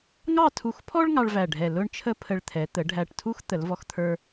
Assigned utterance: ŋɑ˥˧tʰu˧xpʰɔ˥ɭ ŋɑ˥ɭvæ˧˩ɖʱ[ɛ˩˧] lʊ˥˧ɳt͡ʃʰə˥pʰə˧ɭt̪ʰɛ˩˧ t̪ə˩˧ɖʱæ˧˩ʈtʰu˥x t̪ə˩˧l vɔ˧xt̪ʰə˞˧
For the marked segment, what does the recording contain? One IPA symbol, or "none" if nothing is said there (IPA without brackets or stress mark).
ɛ˧˩